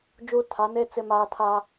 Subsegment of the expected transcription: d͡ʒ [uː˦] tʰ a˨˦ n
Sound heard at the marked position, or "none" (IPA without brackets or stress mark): uː˦